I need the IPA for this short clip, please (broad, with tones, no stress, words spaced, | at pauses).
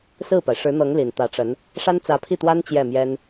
sɹ̩˥˩pa˩ɪ̯ʂɻ̩˧˥n̪ɤ˧˥ŋ li˨˩nt̪ä˧˥ʈ͡ʂə˧˥n | ʂa˥nt͡sä˧˥pʰi˥˩t̪wa˥n t͡ɕjɛ˥˩mjɛ˥n